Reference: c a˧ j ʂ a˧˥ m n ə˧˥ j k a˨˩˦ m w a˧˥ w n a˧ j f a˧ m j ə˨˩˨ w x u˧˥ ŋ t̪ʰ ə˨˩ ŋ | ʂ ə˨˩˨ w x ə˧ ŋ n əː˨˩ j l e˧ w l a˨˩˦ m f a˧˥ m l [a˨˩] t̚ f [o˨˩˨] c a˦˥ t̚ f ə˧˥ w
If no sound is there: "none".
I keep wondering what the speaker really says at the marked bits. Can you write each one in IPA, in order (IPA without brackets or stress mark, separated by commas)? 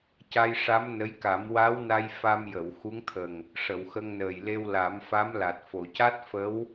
a˨˩, o˨˩˨